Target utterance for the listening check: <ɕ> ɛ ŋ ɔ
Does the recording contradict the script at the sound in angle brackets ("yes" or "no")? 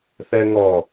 yes